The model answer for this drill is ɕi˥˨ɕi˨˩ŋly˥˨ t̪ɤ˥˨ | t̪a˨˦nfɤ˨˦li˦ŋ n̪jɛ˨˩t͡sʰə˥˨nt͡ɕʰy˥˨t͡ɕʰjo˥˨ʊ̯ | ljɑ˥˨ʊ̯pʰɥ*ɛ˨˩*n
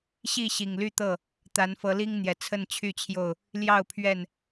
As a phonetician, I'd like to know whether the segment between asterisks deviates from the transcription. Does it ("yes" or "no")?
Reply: yes